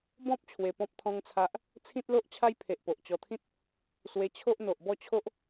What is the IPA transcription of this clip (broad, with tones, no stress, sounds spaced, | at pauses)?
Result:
b ɔ̃˦ p̚ t͡ɕʰ w e˧ p ɔ̃˦ p̚ t̪ʰ ɔ̃˦ ŋ t͡sʰ a˦ ʔ | t͡sʰ ĩ˦ t̚ l o˦ ʔ t͡ɕʰ a˦ j pʰ e˨ ʔ p o˨ ʔ t͡ɕ ɔ˧ t̪ʰ ĩ˦ t̚ | s w e˧ t͡ɕʰ o˦ ʔ n̪ o˨ ʔ b ɔ˥˧ t͡ɕʰ o˦ ʔ